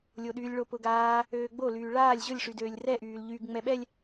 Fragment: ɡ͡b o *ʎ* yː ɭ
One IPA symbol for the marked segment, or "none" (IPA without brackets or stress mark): l